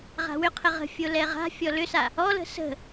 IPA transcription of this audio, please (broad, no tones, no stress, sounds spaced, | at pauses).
ʁ a̤ w ʏ qʰ ə ʁ ə̤ fʲ o l ɛ ʁ a̤ fʲ ɔ l ʏ s a | ɔ l ə̤ s ə̤